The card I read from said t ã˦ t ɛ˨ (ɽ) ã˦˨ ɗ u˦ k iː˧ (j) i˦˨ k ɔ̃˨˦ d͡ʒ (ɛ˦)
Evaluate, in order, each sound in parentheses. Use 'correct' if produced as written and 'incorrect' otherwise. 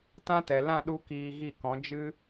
incorrect, incorrect, incorrect

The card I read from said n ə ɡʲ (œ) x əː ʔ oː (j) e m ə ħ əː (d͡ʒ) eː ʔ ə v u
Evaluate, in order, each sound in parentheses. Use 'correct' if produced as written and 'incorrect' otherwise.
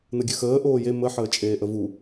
correct, correct, incorrect

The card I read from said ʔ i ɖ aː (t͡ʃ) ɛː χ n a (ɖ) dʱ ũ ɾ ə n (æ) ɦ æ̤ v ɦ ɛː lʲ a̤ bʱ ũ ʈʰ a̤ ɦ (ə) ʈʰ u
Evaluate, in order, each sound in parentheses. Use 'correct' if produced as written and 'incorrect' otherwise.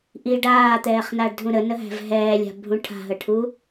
incorrect, correct, incorrect, correct

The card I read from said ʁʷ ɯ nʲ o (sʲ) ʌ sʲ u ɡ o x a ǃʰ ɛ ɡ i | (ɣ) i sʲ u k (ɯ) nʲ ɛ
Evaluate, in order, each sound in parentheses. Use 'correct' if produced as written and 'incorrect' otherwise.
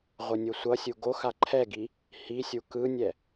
incorrect, incorrect, correct

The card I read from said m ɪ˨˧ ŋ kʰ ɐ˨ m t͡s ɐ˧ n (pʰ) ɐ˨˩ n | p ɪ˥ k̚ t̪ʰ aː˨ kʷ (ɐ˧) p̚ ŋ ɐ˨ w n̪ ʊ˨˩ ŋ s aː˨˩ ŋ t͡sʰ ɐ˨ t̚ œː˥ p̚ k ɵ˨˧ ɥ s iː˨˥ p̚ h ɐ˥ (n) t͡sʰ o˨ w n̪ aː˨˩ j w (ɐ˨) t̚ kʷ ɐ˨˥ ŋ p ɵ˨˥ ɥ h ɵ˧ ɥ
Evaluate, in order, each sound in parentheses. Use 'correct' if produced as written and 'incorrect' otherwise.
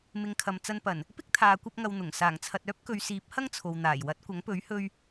incorrect, correct, incorrect, incorrect

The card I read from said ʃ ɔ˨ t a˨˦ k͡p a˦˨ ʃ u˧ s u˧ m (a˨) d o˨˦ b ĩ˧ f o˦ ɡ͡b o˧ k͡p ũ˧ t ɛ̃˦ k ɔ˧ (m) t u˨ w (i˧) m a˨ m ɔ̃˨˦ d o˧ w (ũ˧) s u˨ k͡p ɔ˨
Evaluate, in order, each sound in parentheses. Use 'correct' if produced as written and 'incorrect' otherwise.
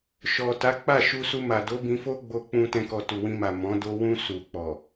correct, incorrect, incorrect, correct

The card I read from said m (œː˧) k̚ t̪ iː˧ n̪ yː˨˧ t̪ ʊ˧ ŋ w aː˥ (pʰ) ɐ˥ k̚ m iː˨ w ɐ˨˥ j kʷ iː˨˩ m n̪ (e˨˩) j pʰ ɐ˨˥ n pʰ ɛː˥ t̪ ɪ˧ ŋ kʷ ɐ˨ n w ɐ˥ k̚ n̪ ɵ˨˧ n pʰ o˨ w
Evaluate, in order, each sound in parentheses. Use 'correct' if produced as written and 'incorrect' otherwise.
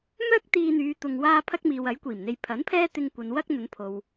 incorrect, correct, incorrect

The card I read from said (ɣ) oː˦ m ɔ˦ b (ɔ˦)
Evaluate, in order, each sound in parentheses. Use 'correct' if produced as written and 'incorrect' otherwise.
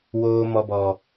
incorrect, correct

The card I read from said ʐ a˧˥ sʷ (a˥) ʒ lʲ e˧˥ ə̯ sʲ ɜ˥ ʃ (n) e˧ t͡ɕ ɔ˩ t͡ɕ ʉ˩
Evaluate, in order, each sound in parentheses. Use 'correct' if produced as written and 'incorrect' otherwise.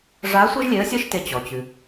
incorrect, incorrect

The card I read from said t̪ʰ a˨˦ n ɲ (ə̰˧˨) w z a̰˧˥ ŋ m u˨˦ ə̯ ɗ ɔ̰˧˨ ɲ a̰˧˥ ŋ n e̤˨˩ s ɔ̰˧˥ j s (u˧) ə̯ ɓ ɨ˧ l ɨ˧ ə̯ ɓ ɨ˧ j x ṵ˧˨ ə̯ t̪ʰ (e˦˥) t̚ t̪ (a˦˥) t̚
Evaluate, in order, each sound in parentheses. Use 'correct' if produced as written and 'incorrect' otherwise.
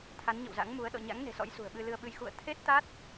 correct, incorrect, correct, correct

